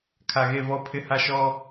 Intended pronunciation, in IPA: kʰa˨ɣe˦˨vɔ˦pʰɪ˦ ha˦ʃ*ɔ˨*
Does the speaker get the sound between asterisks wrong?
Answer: yes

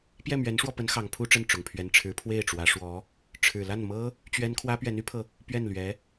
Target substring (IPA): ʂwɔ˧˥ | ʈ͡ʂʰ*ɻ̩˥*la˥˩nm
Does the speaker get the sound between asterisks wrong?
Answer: yes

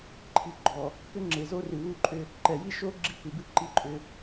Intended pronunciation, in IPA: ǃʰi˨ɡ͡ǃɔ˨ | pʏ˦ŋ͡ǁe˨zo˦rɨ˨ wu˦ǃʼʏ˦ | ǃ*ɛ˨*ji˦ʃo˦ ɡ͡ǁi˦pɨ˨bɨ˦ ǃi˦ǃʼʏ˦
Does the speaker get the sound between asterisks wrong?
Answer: no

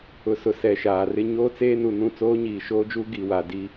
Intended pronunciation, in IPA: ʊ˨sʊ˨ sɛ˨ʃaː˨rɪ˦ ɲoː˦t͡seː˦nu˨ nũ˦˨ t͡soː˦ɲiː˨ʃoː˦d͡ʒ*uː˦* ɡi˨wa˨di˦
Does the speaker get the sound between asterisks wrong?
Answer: no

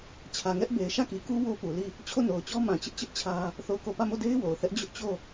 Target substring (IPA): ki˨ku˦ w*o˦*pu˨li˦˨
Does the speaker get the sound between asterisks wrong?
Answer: no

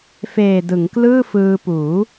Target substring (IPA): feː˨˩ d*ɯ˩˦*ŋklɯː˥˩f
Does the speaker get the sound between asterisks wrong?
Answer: no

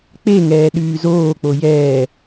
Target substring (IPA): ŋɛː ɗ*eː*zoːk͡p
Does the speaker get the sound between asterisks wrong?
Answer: yes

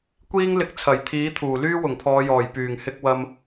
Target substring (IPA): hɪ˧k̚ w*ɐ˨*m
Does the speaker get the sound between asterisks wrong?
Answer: yes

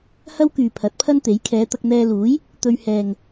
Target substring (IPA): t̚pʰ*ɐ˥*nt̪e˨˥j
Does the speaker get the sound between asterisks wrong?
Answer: no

